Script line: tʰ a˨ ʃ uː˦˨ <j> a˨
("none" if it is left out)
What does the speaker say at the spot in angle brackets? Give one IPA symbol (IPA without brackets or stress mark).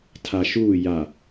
j